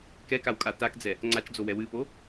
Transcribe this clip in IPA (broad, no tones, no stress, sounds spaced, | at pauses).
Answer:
k ɛ k a w kʼ a t a k d͡z ɛ | ŋ͡ǀ a t͡ʃ d͡z o w ɛ w ɨ p o